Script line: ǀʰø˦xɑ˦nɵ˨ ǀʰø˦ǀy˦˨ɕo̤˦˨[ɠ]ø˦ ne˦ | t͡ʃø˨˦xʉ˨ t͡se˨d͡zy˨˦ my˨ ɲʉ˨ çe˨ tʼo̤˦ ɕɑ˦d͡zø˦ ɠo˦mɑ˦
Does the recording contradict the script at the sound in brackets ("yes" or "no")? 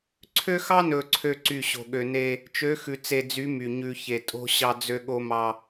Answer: no